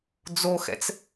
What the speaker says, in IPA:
d͡zoxɛ̰t͡s

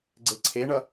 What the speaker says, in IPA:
ɡ͡ǀeǀʰeɳʌ

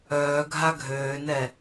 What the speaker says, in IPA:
œːɡʱa ɡʱøːnɛ

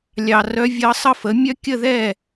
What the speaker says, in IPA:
lʲɑ˨rœ˧˥vʲɤ˧˥ sˤɤ˥˨fə˩˥mʲœ˥ kʲə˥˨ðɛ˥˨

